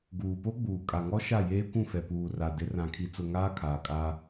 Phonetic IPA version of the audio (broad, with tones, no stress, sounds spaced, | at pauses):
ɡ uː˨ p o˦ ɡ͡b uː˨ kʼ a˨ ŋ ɔ˦ ʃ a˦˨ j eː˦ kʷ ũ˦˨ f ɛ˨ p uː˨ r a˨ d ɪ˨˦ r ã˨ kʰ i˨ t͡s ʊ˨ ŋ aː˦ kʰ aː˨ kʼ a˦